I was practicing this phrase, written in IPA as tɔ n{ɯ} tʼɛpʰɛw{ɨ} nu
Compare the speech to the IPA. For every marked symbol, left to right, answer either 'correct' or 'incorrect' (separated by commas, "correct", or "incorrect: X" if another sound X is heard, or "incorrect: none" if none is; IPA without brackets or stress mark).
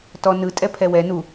correct, incorrect: ɛ